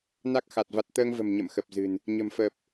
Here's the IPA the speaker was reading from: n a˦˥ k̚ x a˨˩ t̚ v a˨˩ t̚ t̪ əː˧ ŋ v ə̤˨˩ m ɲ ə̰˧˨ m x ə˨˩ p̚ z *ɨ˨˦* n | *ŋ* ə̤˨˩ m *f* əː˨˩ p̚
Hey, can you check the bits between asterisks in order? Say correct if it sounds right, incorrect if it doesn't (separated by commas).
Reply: incorrect, incorrect, correct